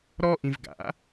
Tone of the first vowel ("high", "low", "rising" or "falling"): high